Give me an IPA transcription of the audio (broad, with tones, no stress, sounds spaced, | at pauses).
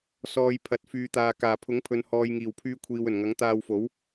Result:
s ɔː˨ j pʰ ɐ˨˥ t̚ f yː˨˧ t̪ aː˨ k aː˨˩ pʰ ʊ˨˥ ŋ pʰ ɵ˨ n h ɔː˨ j ŋ iː˨˩ w pʰ yː˧ kʷʰ iː˨ w ɵ˨˩ n ŋ ɐ˨˥ ŋ t̪ aː˧ w f o˨˥ w